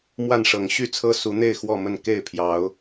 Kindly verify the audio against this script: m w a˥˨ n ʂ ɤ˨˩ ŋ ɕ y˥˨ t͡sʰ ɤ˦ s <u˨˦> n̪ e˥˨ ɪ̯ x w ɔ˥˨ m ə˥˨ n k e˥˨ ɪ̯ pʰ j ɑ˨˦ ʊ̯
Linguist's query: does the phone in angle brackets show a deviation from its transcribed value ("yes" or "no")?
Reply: no